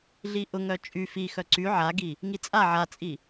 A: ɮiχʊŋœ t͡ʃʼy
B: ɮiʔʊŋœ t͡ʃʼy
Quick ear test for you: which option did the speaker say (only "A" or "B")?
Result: B